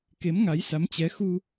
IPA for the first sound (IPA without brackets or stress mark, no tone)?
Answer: k